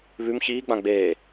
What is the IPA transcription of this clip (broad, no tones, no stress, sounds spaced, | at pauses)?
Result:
β ʉ m ç iː ɡ͡b ã ɡ͡b eː